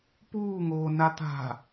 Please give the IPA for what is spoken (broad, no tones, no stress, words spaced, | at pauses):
puːŋoː nat̪a̤